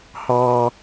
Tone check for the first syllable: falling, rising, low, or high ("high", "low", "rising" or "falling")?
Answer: high